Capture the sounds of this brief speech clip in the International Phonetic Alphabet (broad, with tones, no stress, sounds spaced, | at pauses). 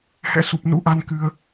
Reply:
h ɛ̰˧˥ s u˨˩ p̚ n ṵ˧˥ ʔ a˧ n k ɨ˧ ə̯